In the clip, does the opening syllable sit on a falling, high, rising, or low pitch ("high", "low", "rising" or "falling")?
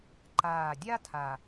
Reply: low